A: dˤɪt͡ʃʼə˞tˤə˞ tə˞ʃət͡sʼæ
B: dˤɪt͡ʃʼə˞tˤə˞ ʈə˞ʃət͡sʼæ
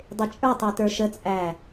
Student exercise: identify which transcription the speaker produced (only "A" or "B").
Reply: A